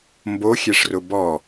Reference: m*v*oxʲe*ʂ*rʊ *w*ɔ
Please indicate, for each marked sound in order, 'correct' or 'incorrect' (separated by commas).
incorrect, correct, incorrect